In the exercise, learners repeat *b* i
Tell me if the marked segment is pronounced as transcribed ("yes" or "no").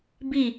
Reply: yes